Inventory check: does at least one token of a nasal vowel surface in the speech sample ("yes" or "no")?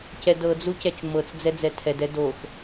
no